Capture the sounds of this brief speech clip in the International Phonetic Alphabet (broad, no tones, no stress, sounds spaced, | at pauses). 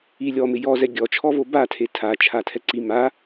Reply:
i lʲ ɔ m ɪ j ɔ z ɛ ɡʲ ɔ t͡ʃʰ ɔ v o b a tʰ e tʰ a t͡ʃʰ a tʰ ɛ ǀ i m a